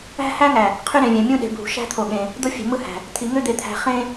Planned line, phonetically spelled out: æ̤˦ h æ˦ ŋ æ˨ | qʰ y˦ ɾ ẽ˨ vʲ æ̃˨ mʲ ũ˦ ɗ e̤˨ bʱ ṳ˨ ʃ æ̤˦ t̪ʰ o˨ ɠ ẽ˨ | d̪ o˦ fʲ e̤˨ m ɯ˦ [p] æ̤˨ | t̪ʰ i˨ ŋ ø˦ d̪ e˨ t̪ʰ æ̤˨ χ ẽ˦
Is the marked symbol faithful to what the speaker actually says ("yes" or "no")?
no